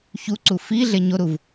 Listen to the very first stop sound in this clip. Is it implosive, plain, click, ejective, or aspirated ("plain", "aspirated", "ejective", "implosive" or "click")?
click